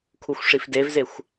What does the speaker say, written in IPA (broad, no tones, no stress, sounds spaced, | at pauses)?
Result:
kʰ u xʷ ʂ i f d e v z e xʷ